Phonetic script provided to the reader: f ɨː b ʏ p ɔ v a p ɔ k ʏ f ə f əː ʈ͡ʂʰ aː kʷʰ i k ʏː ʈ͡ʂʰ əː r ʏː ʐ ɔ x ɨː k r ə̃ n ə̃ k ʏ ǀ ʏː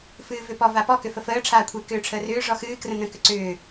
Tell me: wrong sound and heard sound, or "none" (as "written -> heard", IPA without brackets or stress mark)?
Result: b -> v